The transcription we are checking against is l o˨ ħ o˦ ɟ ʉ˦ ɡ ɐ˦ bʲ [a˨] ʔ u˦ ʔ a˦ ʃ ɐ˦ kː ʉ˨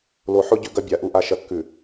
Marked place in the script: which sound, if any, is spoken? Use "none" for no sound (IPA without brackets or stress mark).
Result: a˨